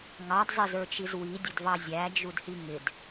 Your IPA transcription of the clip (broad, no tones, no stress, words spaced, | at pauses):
ŋɑdzˤɪzə˞t͡ʃiz widʲʊdvɑ zʲæd͡ʒudhi ŋɪd